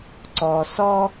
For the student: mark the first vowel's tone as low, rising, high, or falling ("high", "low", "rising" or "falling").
low